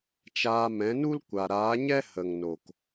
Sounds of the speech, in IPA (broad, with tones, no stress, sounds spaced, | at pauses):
t͡ʃ aː˧ m ɛ̃˨˦ n u˦ l kʷ a˨ ɾ aː˨˦ ɲ ɛ˦ h ə˨ ŋ n o˨ k